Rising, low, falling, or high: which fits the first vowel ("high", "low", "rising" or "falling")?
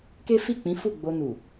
high